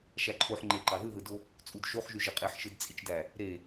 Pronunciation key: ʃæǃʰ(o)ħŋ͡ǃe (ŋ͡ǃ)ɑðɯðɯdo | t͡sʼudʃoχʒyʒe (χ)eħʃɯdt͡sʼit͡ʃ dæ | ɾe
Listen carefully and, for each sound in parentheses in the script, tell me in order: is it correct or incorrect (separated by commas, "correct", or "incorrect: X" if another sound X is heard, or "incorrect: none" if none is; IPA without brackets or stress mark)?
correct, incorrect: ǃ, incorrect: qʼ